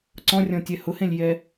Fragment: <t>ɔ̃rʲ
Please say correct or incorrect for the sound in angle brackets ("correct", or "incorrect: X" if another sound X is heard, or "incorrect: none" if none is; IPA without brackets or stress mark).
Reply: incorrect: ǀ